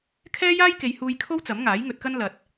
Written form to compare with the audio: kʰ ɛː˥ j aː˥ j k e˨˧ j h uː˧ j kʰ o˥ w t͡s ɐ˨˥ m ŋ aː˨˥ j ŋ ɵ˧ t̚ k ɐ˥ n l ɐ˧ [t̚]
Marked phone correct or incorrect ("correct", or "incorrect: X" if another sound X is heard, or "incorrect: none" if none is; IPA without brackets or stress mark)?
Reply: correct